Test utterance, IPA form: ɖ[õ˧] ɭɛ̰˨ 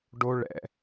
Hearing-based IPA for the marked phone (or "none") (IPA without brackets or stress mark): o˧